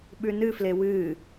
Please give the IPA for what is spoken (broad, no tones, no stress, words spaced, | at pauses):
ɓʉnɨfle wɨ